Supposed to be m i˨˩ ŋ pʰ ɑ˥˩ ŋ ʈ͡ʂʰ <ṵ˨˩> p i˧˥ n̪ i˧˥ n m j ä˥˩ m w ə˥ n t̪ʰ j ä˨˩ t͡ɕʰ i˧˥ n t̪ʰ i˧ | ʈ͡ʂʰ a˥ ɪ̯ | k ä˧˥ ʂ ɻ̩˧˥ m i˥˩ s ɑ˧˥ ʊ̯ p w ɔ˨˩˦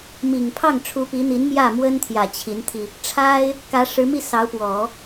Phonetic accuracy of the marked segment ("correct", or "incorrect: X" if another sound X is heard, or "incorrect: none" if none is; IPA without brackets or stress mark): incorrect: u˧˥